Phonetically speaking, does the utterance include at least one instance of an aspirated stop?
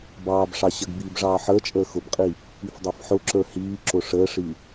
no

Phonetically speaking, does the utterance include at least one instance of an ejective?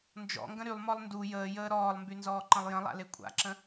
yes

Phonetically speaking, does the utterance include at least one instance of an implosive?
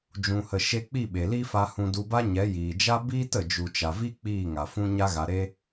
yes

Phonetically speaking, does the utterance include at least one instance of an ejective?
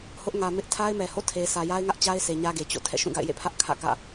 no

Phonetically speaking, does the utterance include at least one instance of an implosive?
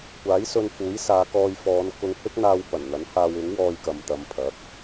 no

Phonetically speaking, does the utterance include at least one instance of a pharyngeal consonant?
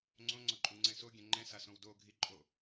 no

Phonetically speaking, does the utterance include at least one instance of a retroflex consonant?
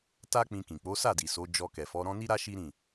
no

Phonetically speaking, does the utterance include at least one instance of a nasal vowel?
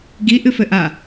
no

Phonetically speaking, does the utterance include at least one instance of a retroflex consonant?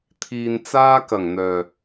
no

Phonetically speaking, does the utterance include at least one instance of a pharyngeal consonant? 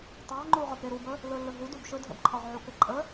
yes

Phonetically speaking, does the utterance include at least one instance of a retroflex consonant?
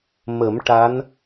yes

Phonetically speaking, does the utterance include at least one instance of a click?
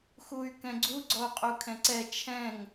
yes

